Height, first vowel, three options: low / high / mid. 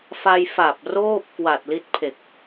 low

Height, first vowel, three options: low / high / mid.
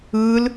high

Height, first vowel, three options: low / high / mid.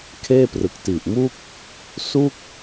mid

